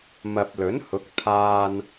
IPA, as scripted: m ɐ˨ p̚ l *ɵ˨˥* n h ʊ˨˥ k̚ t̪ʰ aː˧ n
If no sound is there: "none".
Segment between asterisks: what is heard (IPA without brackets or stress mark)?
ɵ˨˥